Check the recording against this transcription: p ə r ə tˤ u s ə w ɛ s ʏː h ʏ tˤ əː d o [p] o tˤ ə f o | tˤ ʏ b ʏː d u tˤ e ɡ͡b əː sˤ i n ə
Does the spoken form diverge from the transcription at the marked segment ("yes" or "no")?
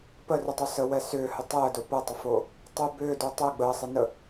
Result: no